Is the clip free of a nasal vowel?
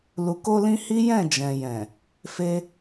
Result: no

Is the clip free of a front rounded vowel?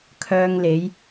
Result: no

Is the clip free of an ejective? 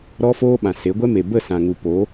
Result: yes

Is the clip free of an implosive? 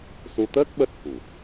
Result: no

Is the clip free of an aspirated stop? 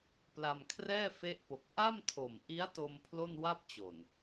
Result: no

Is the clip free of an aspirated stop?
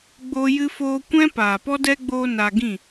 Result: yes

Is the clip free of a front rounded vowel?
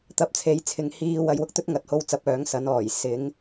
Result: no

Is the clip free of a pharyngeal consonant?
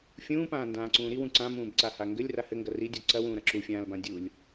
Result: yes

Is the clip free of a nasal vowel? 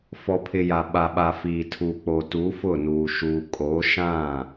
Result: no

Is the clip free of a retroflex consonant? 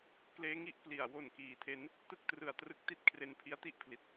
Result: yes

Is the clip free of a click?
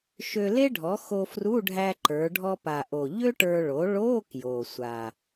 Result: no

